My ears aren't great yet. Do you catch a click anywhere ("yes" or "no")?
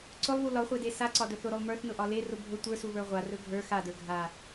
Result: yes